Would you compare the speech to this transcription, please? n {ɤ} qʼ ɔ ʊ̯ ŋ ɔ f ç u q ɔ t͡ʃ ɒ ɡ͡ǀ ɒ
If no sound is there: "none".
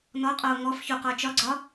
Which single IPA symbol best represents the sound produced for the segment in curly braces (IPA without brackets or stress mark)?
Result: ɔ